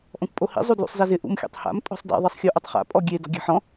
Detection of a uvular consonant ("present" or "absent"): present